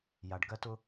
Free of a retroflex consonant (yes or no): no